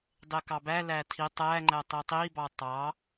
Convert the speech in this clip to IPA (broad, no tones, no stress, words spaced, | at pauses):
dˤekɑbælæ tʰi tˤæŋ͡ǃæ tˤitˤibɑ tˤɑ